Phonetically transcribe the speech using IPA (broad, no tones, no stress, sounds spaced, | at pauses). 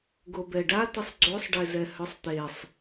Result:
ɡ o b ɛ ɖ a t ɨ sˤ ɡ͡ǀ o sˤ ɖ e z ɛ h œ sˤ t̪ e sˤ